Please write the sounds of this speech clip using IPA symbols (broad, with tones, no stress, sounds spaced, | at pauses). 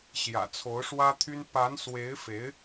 ɕ j ä̰˨˩ t͡sʰ o˧˥ ʊ̯ ʂ w ä˥ t̪ʰ y˥ n p a˧˥ n s w e˧˥ ɪ̯ f e˧˥ ɪ̯